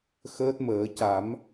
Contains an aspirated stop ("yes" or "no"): no